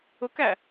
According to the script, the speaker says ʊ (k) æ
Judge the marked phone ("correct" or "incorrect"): correct